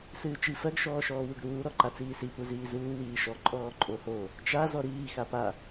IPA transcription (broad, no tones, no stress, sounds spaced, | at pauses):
s ɨː t͡ʃ i f ɜ ɡ ʃ ɔː ʃ ɔː w u ɡ ɾ uː ɾ ɔ ǃ a t͡s iː s i p u z iː z uː w iː ʃ ɔ ǃʼ ɔː ǃʼ o h o | t͡ʃ a z ɔ ɾ iː x a p a